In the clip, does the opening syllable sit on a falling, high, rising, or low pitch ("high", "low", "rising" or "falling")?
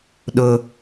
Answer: low